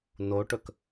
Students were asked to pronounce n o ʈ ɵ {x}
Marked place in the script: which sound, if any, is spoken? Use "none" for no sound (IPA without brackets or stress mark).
k